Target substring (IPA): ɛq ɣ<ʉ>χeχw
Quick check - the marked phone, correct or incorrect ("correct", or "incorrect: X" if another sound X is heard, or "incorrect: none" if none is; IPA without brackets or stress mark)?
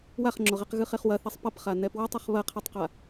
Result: incorrect: ɨ